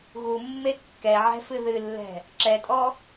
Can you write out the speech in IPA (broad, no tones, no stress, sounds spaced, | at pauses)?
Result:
ɣ u mː e kː ɛ ʕ ɛ̤ f ɨ ð ɨ lː ɛ̤ | ǁ ɛ tʼ ɔ